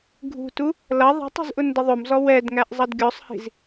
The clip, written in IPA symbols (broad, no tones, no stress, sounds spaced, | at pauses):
ɡʱ ṳ t u | l ʌ ðˤ ə̤ tˤ ṳ z ʔ ʊ n d ə ðˤ ʊ m z ɔ w ɛ d ŋ æ ʔ zˤ ʌ d ɡʲ ɔ sˤ h i̤ z